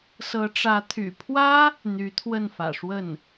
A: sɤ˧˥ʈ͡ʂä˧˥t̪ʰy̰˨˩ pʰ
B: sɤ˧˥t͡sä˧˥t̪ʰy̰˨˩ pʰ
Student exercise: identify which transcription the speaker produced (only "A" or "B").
A